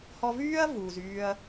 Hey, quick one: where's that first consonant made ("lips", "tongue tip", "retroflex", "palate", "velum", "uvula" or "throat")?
throat